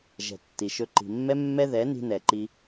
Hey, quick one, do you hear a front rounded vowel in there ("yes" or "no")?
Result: no